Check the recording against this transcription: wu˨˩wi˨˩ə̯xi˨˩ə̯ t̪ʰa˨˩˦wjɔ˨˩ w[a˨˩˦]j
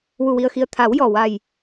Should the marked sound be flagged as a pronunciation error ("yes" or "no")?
yes